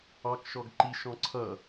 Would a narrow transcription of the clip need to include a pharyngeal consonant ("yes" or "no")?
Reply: no